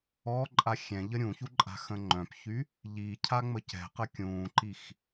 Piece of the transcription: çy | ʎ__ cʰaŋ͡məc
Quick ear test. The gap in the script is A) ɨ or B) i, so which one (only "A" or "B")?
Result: B